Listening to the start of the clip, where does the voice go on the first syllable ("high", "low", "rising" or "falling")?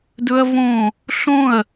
high